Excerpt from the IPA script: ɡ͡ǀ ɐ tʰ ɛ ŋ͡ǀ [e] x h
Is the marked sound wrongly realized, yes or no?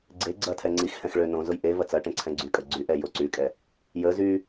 yes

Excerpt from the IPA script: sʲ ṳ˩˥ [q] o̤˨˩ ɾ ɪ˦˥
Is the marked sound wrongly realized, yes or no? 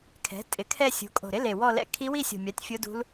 yes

